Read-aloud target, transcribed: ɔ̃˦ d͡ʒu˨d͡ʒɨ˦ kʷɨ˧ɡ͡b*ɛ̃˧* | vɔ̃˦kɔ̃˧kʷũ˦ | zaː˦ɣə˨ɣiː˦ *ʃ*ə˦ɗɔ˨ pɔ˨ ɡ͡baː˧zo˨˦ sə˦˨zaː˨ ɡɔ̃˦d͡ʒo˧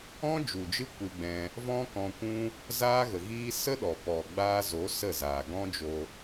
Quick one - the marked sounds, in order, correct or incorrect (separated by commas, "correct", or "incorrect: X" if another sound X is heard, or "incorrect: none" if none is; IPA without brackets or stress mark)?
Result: correct, incorrect: s